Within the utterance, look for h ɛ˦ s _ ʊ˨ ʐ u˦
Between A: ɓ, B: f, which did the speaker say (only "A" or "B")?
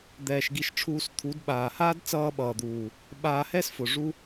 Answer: B